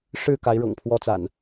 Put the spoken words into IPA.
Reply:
ʂ ɻ̩˥˨ k a˨˦ ɪ̯ ɻ ɤ̰˨˩ ŋ pʰ w ɔ˦ t͡s a̰˨˩ n

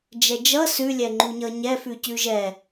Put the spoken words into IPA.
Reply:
d͡ʒ ɛ d͡ʒ ʌ s ʉ lʲ ɛ ŋ͡ǃ u ɲ ʌ ɲ ɛ f ʉ c ʉ ʒ ɛ

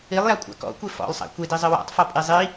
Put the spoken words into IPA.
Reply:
i lˠ j a kʷʼ a̰ k ɔ̰ kʷ e f ɔ̰ lˠ sˤ a̰ kʷ e d i zˤ ɘ w a̰ tˤ f ɔ pʼ i zˤ i

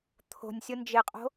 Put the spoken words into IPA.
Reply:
t̪ʰ o̤ nʲ sʲ ʊ n d͡ʒ ɪ qʼ o̤

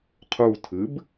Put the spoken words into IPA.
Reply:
qʰ u tʰ ɨ b

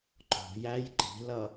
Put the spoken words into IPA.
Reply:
ǃ ɔ̤ j æ j ǃ i̤ l ʌ

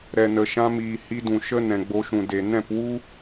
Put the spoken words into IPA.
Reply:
ɾ ɛ˨ n ə˨ ʃ ã˧ m iː˨ h i˧ d ũ˨ ʃ ə˦ n ɛ̃˨ ɡ͡b o˧ ʃ ũ˨ d e˨ n ɛ̃˦˨ p w u˦

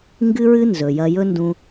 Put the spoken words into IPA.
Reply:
ŋ ɡ ɨ˥ ɹ ɨ˥ n z ɵ˩ j ɐ˧ j ɵ˥ n d ũ˧

